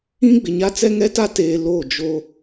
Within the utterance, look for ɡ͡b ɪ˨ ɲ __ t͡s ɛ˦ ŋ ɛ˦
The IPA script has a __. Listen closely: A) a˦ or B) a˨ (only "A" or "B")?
A